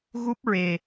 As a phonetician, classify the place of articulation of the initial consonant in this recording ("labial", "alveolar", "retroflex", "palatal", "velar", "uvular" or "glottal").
velar